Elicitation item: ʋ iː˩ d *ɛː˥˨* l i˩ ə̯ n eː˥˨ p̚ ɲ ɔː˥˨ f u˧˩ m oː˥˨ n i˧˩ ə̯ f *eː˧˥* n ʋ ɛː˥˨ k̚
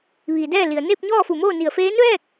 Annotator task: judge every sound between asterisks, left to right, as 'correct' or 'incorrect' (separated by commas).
correct, correct